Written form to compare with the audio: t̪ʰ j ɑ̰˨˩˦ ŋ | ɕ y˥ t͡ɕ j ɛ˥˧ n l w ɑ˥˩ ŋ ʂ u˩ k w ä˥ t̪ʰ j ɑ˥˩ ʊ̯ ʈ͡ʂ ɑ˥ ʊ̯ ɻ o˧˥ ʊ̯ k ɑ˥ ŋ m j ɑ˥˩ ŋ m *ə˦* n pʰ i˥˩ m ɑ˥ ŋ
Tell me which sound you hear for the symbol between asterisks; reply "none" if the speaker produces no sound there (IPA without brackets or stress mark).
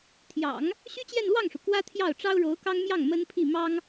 ə˥